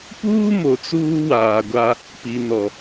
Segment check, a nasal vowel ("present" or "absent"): absent